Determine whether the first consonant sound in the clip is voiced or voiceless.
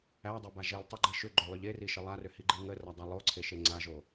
voiced